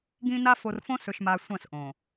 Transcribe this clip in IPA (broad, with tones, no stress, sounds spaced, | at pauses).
ɡ ĩ˦ n a˦ f o˨ r f õ˦ s ɵ˨ ʃ m a˨ sʷ ɐ̃˦˨ s ʔ õ˨